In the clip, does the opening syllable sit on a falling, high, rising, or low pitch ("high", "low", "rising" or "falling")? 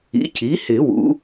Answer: rising